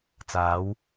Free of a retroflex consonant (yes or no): yes